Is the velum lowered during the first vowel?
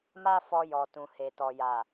no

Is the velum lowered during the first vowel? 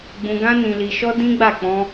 yes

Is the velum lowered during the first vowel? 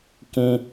yes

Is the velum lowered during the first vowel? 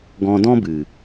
yes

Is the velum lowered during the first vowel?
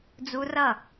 no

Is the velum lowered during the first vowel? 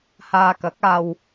no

